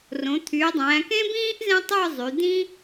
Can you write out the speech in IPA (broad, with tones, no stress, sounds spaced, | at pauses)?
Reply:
r õ˩˧ t̪ʰ y˩˧ dˤ æ̃ː˩˧ k ẽ˥ b ĩː˥ ʔ z ẽ˥ tˤ ɯ˥˧ zˤ y˩˧ d̪ ĩ˥